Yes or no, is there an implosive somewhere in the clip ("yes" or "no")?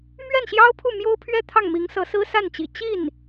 no